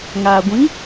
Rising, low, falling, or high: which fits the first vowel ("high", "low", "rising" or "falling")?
low